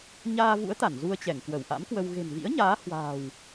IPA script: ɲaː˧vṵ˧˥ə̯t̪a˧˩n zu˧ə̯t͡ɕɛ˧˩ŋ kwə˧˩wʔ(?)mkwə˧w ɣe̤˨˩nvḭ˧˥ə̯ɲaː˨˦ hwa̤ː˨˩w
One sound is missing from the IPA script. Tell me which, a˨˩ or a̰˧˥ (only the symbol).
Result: a̰˧˥